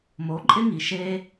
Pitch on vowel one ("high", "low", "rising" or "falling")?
rising